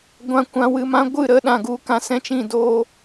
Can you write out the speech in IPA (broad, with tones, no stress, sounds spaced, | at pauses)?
ɡʷ ã˨ kʷ ã˨ w ɨ˨ m ã˧ ɡʷ ɨ˦˨ ɾ ə˧ ɗ ã˨ ɡ u˨ k ã˧ s ɛ̃˦ t͡ʃ ĩ˦˨ d oː˦